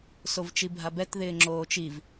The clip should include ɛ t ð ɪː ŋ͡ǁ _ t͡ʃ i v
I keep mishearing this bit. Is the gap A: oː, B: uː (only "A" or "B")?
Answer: A